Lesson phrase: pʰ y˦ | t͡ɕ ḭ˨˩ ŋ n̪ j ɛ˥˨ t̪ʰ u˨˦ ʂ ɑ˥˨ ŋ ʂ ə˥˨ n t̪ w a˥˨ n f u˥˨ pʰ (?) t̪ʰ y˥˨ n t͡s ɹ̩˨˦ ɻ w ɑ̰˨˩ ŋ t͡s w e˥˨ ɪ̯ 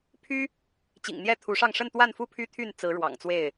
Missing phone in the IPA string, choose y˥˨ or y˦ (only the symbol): y˦